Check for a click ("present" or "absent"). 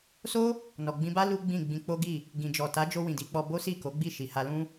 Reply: absent